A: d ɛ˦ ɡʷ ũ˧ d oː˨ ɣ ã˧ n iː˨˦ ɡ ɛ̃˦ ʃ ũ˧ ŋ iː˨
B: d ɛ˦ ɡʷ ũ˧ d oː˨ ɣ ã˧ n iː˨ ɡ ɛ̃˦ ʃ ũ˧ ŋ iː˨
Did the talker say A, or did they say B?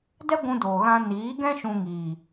A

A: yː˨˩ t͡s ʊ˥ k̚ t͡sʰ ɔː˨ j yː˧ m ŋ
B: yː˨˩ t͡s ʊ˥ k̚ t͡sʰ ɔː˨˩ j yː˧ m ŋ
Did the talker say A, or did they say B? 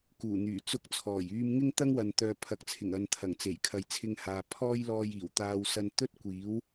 B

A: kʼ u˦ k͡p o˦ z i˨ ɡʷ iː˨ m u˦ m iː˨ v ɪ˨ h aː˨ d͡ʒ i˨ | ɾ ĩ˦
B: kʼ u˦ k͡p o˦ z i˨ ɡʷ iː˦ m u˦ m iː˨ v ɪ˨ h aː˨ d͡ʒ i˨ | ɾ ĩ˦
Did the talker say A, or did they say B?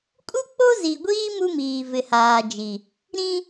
B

